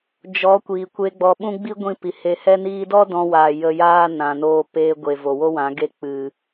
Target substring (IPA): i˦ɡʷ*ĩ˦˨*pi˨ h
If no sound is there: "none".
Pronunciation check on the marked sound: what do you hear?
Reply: ĩ˦˨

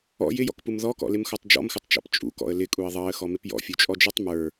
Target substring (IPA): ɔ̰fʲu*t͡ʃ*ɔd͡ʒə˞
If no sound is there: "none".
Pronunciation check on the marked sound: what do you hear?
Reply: t͡ʃʼ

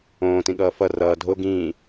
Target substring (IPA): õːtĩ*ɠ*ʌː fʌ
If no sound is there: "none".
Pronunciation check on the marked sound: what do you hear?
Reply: ɠ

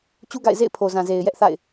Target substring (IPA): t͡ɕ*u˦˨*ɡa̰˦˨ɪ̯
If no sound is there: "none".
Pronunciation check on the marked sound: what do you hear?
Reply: u˦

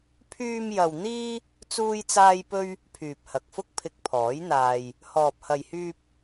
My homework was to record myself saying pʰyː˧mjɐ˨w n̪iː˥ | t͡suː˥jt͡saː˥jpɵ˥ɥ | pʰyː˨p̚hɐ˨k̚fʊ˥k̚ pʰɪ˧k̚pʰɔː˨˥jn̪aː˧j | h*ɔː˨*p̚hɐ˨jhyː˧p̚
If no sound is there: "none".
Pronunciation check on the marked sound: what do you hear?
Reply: ɔː˨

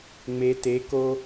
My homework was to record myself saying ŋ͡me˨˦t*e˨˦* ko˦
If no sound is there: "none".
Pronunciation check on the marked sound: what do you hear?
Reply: e˨˦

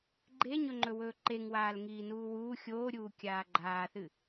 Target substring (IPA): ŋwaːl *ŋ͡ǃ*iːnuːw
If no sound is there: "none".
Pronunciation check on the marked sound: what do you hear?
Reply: ŋ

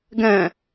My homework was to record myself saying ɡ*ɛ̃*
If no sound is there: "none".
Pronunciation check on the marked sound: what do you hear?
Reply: ɛ̃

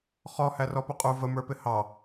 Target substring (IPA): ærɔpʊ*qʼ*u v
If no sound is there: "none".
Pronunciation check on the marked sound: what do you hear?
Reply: qʼ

